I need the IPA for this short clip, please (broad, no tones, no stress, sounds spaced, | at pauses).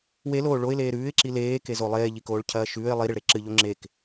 w e l oː ɭ o ɪ̯ l eː ɾ ʉː ɪ̯ ǁ i l eː k e z o lˠ eː ʎ i k oː ɭ cʰ ɐː ʃ ʉː ɪ̯ lˠ i ɾ i ɭ ɾ e ǁ ɨ ʎ o ŋ͡ǁ e k